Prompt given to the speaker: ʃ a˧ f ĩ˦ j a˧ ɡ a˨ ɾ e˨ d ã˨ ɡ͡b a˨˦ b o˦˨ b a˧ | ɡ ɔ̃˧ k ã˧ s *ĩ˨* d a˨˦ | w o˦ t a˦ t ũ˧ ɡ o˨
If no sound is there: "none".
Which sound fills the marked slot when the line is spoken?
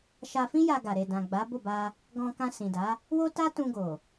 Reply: ĩ˨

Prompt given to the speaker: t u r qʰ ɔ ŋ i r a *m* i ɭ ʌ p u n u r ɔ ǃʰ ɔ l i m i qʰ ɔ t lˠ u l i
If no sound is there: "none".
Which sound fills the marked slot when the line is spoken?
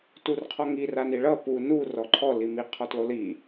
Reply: n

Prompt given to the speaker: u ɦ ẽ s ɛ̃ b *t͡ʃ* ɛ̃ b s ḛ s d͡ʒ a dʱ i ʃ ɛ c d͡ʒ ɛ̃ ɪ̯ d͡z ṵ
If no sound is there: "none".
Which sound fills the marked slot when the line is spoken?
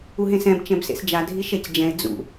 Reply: t͡ʃ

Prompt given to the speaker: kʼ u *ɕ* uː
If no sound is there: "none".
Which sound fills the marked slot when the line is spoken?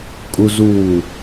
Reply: z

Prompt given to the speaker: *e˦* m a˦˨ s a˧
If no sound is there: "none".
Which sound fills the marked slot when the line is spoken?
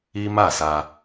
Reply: i˦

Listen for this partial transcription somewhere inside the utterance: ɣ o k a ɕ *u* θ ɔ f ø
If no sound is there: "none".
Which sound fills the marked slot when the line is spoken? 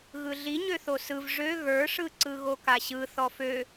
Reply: ɯ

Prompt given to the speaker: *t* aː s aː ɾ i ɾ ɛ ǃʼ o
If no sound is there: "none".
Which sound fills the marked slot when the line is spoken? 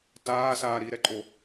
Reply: t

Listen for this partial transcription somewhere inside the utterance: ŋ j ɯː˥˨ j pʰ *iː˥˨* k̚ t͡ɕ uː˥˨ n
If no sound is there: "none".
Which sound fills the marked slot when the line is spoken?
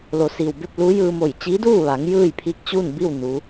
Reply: iː˧˥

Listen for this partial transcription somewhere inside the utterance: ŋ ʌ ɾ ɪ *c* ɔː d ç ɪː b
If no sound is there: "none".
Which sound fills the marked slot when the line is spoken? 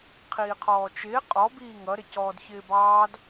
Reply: c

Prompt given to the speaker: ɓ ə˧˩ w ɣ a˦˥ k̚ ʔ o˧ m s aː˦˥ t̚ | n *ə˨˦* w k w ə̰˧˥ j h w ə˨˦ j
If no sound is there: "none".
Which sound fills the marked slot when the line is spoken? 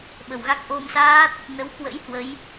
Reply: ə˨˦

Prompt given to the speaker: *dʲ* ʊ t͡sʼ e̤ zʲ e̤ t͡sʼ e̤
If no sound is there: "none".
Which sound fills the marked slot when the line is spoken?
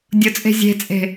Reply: dʲ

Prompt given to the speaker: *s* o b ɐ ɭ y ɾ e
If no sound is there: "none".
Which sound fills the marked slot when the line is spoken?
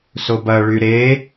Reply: s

